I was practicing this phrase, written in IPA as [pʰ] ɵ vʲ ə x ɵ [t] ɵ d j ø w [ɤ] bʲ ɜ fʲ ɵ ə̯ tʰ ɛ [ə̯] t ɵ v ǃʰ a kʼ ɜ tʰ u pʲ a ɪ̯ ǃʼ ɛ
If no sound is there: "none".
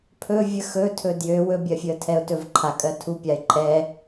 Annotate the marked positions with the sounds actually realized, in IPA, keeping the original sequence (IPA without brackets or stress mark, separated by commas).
pʰ, tʰ, ɵ, ʊ̯